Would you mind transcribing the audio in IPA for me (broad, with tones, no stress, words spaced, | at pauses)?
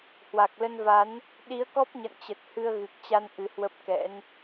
hwa˨˩k̚lə˧nva˨˦n | ɗi˨˦ə̯kɔ˦˥p̚ɲə̰˧˨nt͡ɕə˨˩t̚ hɨ˧ə̯ɣɨ˨˩k̚t͡ɕa˧n ʔɨ˨˦hwə˦˥p̚kɛ̰˧˥n